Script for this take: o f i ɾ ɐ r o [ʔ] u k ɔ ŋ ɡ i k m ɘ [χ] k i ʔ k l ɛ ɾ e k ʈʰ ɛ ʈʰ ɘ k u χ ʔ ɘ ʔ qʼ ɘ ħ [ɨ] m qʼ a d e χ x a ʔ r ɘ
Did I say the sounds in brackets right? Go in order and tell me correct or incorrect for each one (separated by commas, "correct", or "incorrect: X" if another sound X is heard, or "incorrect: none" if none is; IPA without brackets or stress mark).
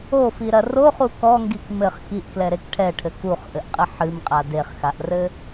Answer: incorrect: χ, correct, correct